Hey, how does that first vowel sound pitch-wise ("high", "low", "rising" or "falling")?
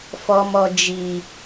low